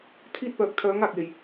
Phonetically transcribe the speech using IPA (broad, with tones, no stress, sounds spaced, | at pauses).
t̪ʰ iː˧ t̚ p œː˨ k̚ t̪ʰ œː˨˧ ŋ aː˨ k̚ j e˨ j